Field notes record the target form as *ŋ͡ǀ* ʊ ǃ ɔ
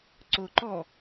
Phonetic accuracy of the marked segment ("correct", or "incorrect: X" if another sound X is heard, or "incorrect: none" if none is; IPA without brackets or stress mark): incorrect: ǀ